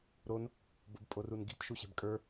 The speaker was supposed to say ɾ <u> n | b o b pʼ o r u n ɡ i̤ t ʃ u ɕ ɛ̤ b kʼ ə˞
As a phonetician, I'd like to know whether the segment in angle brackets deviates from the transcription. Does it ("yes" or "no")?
yes